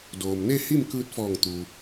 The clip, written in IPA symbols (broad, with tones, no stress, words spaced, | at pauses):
doː˩mne˥˨ hi˥˨mkɯː˧t̚fɔː˧˩ŋ t̪u˩